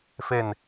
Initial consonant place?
labial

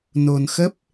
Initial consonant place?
alveolar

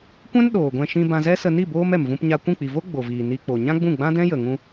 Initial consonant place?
velar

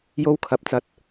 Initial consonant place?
palatal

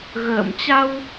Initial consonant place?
velar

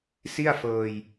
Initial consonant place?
alveolar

